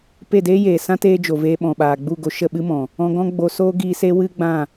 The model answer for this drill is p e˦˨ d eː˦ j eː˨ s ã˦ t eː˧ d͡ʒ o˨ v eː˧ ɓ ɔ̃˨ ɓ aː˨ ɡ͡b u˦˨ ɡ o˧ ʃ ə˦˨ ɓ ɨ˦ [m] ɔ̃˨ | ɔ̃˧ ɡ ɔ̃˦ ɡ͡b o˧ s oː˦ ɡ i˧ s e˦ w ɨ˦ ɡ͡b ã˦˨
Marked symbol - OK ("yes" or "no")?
yes